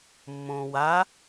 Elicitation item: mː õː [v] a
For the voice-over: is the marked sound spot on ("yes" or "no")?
no